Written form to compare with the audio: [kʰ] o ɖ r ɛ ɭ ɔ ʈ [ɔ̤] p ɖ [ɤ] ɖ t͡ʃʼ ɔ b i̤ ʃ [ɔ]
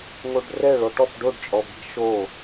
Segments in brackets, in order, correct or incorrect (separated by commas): incorrect, incorrect, incorrect, incorrect